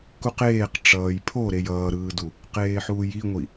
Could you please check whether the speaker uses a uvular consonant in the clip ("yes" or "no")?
yes